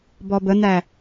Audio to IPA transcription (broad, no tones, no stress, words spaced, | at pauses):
bɔbən̪æ